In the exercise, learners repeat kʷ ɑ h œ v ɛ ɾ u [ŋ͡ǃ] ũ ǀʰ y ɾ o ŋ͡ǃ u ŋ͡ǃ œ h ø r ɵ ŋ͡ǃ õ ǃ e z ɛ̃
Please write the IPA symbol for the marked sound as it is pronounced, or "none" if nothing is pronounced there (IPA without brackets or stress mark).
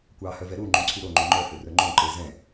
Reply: ŋ͡ǃ